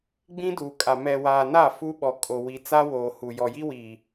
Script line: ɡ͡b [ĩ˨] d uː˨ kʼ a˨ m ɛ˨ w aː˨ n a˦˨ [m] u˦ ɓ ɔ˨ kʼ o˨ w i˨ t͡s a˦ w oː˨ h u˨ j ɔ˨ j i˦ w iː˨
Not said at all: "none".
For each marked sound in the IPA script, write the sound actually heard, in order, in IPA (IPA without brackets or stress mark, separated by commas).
ĩ˦, f